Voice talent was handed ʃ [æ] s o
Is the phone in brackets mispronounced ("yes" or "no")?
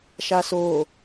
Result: yes